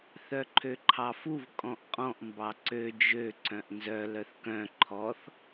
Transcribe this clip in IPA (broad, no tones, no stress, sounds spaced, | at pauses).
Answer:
θ œ ǃʰ ø ǃʰ ɑ f u v kʼ ɔ̃ ʔ qʼ ɔ̃ ʔ m b ɑ ǀ ø d͡ʒ ø ǀ œ̃ ʔ n z œ l œ θ k œ̃ ǃʰ ɔ θ